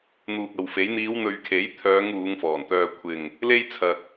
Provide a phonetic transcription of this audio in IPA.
n̪uː˨k̚ɐ˨wfe˨˥j n̪iː˨˧wn̪ɵ˨ɥkʰe˨˥j t̪ʰœː˨˧ŋ uː˨˧ŋfɔː˨˩nt̪œː˧ kʷʰɪ˨ŋ | le˥jt͡sʰɐ˨k̚

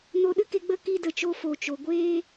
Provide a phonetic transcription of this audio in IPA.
no˧ɗɨ˦ke˧ ɡ͡bə˦ki˧də˨t͡ʃo˧ fo˨t͡ʃo˨ ɡʷeː˦

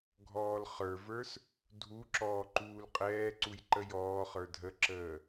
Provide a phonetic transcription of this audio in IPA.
ɡʱɔːlχə˞və˞s | dʱuǁɔː ǃuːlqʼɛːǀuj ǃəjɔːχə˞ dʱəǁəː

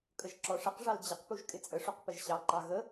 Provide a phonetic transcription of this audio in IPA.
kʼəʒǁɔʂəqʐɑl d͡ʑəqpuʒ kʼɪt͡sʼəʂuq pəʒɕɑǃɑ ɣə

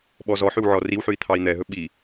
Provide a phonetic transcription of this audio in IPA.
ɓɔzɔħʉw ʕɔriwħʉi̯ t̪ʰɑi̯n̪ɛɦɵ ɓi

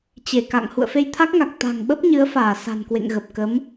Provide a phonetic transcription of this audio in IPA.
t͡ɕe˧˩ka̰˧˨ŋ hṵ˧˨ə̯fe˧jt̪ʰa˦˥k̚ŋa˨˩k̚ t̪a̤˨˩ŋɓə˦˥p̚ ɲɨ˨˦ə̯faː˧˩ sa̤˨˩nkwḛ˧˨ŋɣə˨˩p̚ kə˨˦m

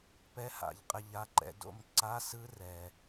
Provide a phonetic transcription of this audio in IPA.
pɛ˧˥˧ha̰˧˩˧ʎ qʼɛ˦˨ʎa˧˥˧ǃɛ̰˧˥˧ do̰˦˨mǀa˧˥˧ sɯ˥rɛ˩

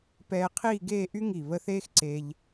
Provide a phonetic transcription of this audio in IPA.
pɛː˧qʰiː˥˧ɡeː˥˧ʔy˥ ŋi˧˩ βə˥ θeː˥xǀe˧ʎ

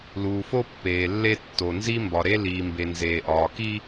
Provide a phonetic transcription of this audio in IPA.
luː˨fo˦pːeː˨lːe˦ tːo˨nzi˦ mbɒ˨ɾe˦ liː˨mbe˨nzeː˨ʔɒː˨ ki˦

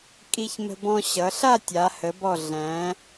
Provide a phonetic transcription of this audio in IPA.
kʼi˧çmə̤˧bɔ̃˧ ɕʌ˩˧ɬa˥˧tʲa˩˧ hə˩˧bɔ˧˩ ɮæ̃˩˧

